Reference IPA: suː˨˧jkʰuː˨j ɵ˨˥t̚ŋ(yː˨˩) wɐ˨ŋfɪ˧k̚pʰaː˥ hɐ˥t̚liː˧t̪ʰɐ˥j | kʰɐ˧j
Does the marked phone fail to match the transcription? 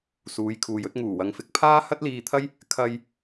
yes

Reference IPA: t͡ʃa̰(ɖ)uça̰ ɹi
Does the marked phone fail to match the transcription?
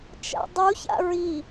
yes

